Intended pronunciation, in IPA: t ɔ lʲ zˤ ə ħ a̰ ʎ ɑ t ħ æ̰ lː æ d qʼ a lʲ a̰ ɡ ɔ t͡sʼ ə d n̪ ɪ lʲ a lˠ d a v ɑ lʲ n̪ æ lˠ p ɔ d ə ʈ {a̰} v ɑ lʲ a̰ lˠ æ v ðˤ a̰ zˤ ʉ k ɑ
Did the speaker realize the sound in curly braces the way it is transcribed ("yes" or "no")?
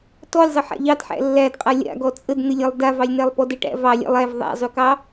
no